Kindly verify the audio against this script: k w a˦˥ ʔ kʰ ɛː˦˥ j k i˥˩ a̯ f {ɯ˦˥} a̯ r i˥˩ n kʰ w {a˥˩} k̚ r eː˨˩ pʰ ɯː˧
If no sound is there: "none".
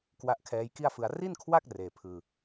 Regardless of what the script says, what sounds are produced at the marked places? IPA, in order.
ɯ˧, a˥˩

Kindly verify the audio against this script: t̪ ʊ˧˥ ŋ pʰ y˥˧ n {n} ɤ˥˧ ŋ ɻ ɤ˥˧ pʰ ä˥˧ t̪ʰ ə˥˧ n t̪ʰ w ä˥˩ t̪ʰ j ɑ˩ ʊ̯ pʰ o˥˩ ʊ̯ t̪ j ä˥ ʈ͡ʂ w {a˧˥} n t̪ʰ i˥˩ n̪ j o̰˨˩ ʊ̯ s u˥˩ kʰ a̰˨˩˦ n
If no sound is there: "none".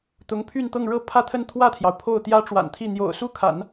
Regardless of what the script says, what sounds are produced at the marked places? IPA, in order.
t̪, a̰˨˩

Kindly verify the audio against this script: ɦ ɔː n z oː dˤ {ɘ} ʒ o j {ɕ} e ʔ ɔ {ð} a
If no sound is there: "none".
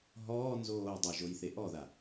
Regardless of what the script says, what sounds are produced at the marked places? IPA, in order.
ɘ, θ, ð

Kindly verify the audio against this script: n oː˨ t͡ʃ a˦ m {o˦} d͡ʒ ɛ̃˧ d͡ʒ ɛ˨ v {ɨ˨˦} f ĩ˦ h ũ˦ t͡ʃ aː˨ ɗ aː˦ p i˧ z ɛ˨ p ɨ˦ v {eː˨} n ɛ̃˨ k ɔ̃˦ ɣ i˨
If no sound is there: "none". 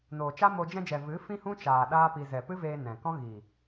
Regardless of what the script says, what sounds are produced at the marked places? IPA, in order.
o˧, ɨ˨˦, eː˧

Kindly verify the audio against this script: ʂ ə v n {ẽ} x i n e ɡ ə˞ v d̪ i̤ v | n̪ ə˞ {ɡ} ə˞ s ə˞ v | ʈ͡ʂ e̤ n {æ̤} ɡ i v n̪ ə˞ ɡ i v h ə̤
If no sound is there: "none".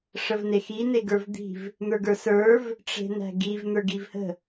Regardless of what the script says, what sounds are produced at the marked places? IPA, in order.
e, ɡ, æ̤

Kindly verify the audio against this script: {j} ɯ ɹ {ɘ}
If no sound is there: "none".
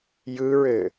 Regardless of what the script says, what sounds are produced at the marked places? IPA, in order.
j, ɘ

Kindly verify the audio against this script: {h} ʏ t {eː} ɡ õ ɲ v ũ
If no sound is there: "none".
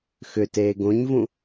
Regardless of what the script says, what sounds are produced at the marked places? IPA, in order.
x, eː

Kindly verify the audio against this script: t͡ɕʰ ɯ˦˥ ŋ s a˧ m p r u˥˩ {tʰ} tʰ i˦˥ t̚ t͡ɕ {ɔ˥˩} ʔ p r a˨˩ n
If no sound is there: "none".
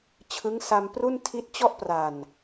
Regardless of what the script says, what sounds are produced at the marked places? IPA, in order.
n, ɔ˥˩

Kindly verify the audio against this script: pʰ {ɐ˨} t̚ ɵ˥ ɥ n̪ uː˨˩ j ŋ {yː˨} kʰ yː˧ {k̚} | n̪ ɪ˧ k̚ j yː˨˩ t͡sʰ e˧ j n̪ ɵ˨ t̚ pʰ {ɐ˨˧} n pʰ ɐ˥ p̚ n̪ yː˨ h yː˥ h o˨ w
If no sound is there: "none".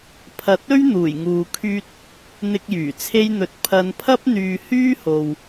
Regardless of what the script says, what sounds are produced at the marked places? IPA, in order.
ɐ˨, uː˨, t̚, ɐ˨˧

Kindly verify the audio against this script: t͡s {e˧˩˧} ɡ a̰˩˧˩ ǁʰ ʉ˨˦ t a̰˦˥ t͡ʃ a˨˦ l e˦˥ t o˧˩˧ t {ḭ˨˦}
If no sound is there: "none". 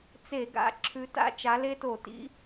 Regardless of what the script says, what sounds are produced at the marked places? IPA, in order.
e˧˩˧, ḭ˨˦

